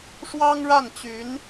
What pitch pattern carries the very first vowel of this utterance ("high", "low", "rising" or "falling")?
high